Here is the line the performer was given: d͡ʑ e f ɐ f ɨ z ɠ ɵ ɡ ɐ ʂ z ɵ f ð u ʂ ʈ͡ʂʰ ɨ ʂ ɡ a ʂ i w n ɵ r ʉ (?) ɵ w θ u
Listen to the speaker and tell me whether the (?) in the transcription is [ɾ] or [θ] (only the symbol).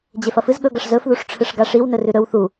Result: ɾ